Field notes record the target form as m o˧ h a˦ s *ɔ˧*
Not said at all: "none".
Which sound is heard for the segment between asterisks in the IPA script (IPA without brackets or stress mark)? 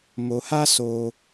o˧